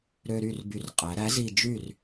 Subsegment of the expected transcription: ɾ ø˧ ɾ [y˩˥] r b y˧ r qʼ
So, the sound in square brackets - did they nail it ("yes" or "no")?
no